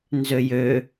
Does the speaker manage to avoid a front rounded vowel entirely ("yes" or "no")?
no